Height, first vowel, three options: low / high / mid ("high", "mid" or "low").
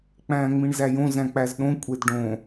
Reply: low